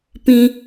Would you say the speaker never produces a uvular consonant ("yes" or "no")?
yes